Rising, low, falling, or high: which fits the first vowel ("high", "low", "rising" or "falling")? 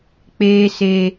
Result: low